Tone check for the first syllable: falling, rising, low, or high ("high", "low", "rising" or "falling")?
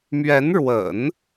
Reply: rising